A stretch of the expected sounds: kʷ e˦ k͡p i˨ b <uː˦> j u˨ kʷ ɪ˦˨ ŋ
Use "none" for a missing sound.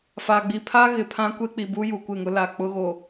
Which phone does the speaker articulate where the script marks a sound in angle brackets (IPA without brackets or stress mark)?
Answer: u˦